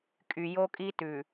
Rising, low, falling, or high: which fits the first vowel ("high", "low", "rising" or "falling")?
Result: low